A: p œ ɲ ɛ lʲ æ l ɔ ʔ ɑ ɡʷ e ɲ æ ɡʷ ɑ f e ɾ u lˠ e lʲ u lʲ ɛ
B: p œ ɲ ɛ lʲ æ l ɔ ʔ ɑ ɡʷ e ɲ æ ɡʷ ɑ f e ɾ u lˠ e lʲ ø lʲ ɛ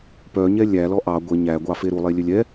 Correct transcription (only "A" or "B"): B